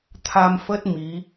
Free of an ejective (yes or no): yes